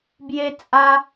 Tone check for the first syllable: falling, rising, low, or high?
high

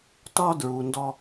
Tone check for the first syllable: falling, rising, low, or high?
high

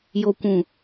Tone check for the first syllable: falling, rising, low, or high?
low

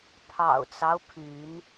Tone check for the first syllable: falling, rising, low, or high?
low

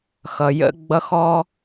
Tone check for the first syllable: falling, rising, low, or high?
low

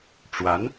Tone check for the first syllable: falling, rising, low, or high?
rising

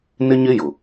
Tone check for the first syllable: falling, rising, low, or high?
high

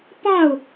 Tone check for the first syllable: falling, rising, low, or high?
falling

